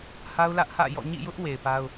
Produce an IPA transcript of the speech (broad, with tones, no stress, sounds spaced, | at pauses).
h a˦ ʊ̯ l ä˦ ʔ h ä̰˦˨ j ɔ̰˦˨ ɲ ḭ˦˨ j ʊ˦ ʔ w e˨ ɪ̯ p a˦ ʊ̯